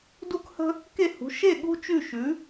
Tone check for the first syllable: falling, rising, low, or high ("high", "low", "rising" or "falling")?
high